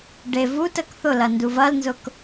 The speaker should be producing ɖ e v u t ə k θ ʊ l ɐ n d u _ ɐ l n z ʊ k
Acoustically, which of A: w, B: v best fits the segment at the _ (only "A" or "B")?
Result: B